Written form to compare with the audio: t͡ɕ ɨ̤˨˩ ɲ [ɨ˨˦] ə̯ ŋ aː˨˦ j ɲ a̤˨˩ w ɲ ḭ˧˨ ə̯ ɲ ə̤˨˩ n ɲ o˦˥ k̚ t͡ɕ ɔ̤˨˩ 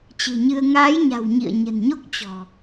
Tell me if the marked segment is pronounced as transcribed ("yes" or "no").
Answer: no